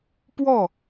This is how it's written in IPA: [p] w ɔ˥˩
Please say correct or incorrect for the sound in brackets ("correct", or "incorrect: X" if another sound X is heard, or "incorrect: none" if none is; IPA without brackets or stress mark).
correct